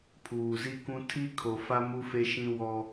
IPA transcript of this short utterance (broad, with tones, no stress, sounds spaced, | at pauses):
pʰ uː˨ z i˦ k ũ˦ tʰ i˦ kʰ o˨ f a˦ m u˦ f e˦ ʃ ĩ˦ w ɔ˦